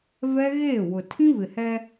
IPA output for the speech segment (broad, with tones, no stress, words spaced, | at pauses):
vɛ˦ɣeː˦˨wʊ˨ tʰĩ˦vɪ˨hɛ˦